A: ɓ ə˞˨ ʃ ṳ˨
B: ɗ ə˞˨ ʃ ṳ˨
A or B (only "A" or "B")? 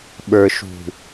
A